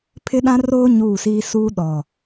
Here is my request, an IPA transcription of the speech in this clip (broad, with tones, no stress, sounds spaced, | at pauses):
pʰ ɪ˦ ɗ ã˦ r oː˦ ɲ uː˦˨ s iː˦ s u˦ ɗ ɔ˨